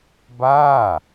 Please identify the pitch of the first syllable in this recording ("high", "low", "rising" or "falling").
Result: falling